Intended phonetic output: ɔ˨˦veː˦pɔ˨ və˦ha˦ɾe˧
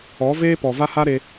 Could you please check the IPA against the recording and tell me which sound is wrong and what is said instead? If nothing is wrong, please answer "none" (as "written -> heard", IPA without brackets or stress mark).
ə˦ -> a˦